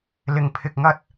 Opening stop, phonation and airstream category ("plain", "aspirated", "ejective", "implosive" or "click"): aspirated